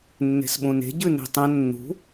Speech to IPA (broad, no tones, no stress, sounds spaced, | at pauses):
nː e̤ s ɓ ũ n e̤ ɟ ʉ n e̤ tˤ ɐ̃ nː ṳ